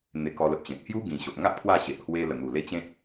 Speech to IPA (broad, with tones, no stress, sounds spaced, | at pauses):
n̪ e˧ k ɔ˧ l ə˨ p̚ ɕ ẽ˨ k̚ h j u˦ ɡ ĩ˨˩ ɕ o˨ ʔ ŋ a˦ ʔ pʰ w a˥˧ ɕ e˨ ʔ h w e˧ l ə˨˩ n̪ u˨˩ l e˦ t͡ɕ ẽ˦ t̚